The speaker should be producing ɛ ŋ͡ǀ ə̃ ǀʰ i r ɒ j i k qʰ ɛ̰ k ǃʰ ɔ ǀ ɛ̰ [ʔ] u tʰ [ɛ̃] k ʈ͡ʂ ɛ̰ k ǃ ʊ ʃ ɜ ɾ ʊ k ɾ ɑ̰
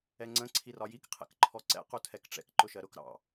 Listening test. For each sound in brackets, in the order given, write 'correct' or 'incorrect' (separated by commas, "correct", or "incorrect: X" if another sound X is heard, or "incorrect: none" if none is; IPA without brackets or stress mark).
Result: incorrect: q, incorrect: ɛ